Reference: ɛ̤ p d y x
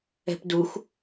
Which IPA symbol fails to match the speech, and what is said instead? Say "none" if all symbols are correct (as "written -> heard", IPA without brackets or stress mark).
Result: y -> u